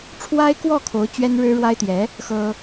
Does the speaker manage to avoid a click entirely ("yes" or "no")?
yes